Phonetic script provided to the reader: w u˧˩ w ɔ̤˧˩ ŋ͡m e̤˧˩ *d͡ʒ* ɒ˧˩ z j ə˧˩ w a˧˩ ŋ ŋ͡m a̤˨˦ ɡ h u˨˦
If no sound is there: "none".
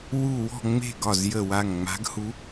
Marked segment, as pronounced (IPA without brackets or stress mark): ɡ